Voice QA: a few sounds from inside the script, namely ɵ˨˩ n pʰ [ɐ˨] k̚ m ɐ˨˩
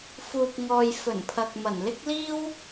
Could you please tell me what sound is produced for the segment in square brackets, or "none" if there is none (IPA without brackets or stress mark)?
ɐ˨